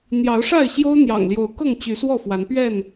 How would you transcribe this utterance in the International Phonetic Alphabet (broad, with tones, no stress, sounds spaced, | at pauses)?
n̪ j ɑ˨˦ ʊ̯ ʂ a˥˨ ɪ̯ ɕ j o˦ ʊ̯ n̪ j ɑ̰˨˩ ŋ l j o˨˦ ʊ̯ k ɤ˥˨ ŋ t͡ɕ y˨˦ s w ɔ˥˨ f w a˨˦ n p ɥ ɛ˥˨ n